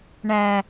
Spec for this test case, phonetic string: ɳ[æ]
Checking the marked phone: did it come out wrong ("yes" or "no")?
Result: no